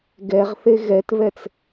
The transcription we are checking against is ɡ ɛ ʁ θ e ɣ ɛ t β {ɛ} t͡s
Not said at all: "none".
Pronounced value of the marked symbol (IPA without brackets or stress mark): ɛ